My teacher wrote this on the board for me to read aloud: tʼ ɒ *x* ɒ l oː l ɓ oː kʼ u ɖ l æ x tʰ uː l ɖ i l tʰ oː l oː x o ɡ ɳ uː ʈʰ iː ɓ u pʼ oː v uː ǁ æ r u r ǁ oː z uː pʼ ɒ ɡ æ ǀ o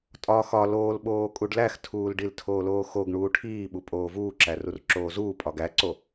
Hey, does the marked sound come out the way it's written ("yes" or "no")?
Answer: yes